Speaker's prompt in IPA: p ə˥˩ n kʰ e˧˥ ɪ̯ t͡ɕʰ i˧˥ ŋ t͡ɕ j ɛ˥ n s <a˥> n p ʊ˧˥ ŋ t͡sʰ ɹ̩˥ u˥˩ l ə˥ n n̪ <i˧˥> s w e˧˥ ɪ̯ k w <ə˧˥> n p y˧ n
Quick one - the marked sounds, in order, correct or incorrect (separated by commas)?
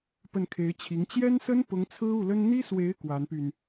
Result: incorrect, incorrect, incorrect